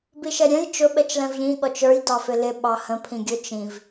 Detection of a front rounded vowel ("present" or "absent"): absent